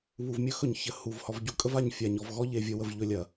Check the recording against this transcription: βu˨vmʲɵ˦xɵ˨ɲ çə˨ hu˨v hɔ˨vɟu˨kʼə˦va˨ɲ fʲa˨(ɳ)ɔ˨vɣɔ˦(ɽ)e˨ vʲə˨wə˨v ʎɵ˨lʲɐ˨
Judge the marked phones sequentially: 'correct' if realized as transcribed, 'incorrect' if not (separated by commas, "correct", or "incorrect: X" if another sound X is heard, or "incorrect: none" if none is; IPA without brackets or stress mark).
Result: incorrect: ɲ, incorrect: ʎ